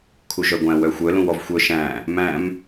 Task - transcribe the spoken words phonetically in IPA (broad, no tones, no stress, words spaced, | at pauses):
kʰuʒœɡʷæ̃ wœxʷœ lũwɔvxʷœ ʃæ̃ | mæ̃m